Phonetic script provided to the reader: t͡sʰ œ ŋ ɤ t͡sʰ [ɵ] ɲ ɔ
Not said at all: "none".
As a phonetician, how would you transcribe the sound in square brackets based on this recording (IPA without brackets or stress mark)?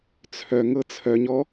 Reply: œ